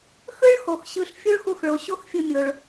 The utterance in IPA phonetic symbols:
x ɯ˥ ɭ x o˩ x ɕ ɯ˧ ɬ fʲ u˥ ɭ x u˧ x ɭ o˩ ɕ o˥ x fʲ ɯ˧ mʲ o˩ ɭ

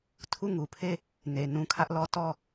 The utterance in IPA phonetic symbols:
tʰ u˦˨ ŋ u˨ pʰ e˦˨ | n e˨ n ũ˦ kʰ ä˦ ʔ l ɔ˦ t ɔ˦˨

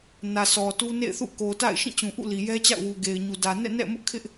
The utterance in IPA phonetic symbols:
n ä˨ sʰ ɔ˨ t u˦ n ḛ˦˨ ɪ̯ θ ṵ˦˨ k o˨ t a̰˦˨ ɪ̯ ʃ ĩ˦˨ t͡ɕ ũ˨ ʔ ṵ˦˨ l i˨ j ɛ˦ t͡ɕ a̰˦˨ ʊ̯ w u˨ ɡ e˨ ɪ̯ ɲ u˨ d ä˨ n ɛ̰˦˨ n ɛ̰˦˨ m ʊ˦ ʔ kʰ ɪ˦ ʔ

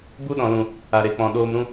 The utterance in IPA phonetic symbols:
b u˦ ɗ ɔ̃˨ l ũ˨ | a˨ ɾ e˨ k͡p ɔ̃˨ ɗ oː˧ m ɾ ũ˧

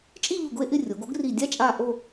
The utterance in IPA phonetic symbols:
t͡ʃʼ i˥˧ ʎ u˧˩ ɡ ʊ˥˧ e̯ ʔ ɪ˥˧ rʲ o˩˧ ɡ o˥ ɡ r i˧˩ dʲ a˥ t͡ʃʼ a˥˧ ʔ o˥˧

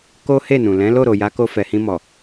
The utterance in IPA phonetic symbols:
k o˦ h e˦˨ n ũ˨ l ɛ̃˨˦ l o˦˨ ɾ o˨ j a˨˦ k o˧ f ɛ˨ h ĩ˧ m ɔ˨

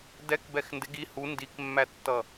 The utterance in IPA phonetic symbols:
d ɛ k b ɛ x n d ɪ ɡ i h u n d i k mː æ tː ʌ

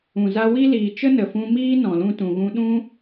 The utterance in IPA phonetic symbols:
ũ˨ z a˧ w i˦ l iː˨ t͡ʃ ə˦ n ə˨ f ũ˧ m iː˦ n ɔ̃˨ l ũ˧ t ũ˨ ɣ ũ˧ ɗ ũ˦

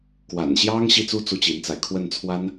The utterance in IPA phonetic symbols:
k w a̰˨˩ n ɕ j ɑ˥ ŋ ɕ i˥˩ t͡s u˥ t͡s u˥ t͡ɕ i˧˥ n t͡s a˧ ɪ̯ kʰ w ə˥˩ n t͡sʰ w a˥ n

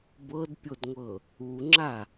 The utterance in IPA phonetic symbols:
b ɤ d pʲ o d ŋʷ ɤ | u ŋ͡ǁ a

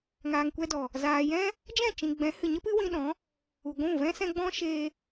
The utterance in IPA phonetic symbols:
ŋ aː˨ ŋ kʷ ɛ˧ d ɔ˨ | z aː˨ j ɛ̃˦ | d͡ʒ ɛ̃˦˨ t͡ʃ ĩ˨ ɡ͡b ɛ̃˨˦ h ɨ˨ ɲ ə˦ p ɨ˦ w ĩ˧ ɗ ɔ̃˨˦ | u˨ ɡʷ ũ˦˨ v ɛ̃˦ s ɛ̃˧ ɡ͡b ɔ̃˦ ʃ eː˧

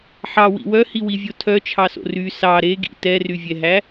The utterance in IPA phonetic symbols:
ħ ɑ w ḭ w œ h i w i vʲ o tʰ œ t͡ʃʰ ɑ s o̰ r y s ɑ ɾ e ɡ ḭ t ɛ r y vʲ ɛ ɦ æ

